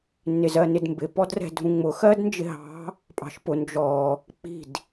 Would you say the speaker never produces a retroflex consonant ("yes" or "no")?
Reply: yes